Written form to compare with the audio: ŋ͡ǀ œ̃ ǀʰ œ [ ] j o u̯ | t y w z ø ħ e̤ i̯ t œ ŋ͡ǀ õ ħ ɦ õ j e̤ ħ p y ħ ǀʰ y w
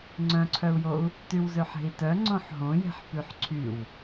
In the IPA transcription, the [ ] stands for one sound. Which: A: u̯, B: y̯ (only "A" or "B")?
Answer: A